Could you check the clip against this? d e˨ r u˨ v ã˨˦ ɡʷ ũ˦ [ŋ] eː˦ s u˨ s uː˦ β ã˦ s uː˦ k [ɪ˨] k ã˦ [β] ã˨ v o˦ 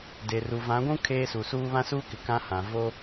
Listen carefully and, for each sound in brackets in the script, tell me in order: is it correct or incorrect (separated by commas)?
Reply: incorrect, correct, incorrect